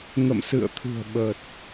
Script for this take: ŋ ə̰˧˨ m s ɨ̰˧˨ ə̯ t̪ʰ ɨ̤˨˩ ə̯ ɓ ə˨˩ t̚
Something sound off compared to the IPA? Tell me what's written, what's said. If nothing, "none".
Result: none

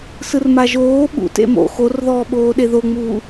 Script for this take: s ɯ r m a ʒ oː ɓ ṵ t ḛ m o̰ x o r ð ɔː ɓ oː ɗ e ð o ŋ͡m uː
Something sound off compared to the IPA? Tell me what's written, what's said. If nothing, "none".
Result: none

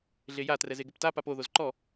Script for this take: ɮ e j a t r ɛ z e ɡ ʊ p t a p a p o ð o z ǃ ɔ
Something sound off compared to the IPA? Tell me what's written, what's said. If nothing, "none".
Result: none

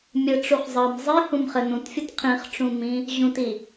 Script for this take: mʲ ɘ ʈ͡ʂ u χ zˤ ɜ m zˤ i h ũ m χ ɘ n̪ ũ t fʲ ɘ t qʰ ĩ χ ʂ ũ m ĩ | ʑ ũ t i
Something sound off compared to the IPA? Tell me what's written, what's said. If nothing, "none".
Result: ʂ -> ʈ͡ʂ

